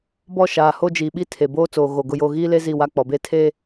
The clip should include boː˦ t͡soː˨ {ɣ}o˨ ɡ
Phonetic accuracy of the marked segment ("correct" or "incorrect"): correct